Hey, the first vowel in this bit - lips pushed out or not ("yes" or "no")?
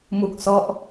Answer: yes